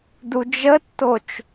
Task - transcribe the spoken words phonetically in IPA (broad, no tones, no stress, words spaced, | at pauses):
dud͡ʒətːot͡ʃ